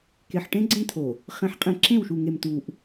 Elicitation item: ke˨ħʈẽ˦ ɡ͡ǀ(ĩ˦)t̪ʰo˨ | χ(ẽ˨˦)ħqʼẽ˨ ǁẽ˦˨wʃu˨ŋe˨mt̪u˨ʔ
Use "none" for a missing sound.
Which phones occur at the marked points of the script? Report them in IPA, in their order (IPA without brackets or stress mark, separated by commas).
ẽ˦, ẽ˨˦